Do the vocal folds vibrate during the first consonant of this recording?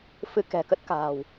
no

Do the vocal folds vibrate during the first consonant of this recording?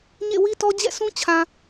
yes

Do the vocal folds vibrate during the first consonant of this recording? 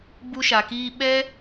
yes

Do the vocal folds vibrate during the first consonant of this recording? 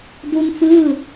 yes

